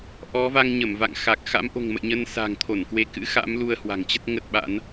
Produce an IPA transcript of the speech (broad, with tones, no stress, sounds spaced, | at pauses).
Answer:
ʔ ɔ˨˦ v a˧ ŋ ɲ ə˧˩ m v a̰˧˨ ŋ x a˨˩ k̚ x a̰˧˥ m ʔ o̤˨˩ ŋ m ə̰˧˨ j ɲ ə˧ n s a̤˨˩ ŋ t̪ʰ o˧˩ n k w e˨˦ k ɨ̰˧˥ x a̰˧˥ m l u˧ ə̯ h w a̤˨˩ ŋ t͡ɕ ə˦˥ t̚ ŋ ə˦˥ t̚ ɓ a̰˧˥ n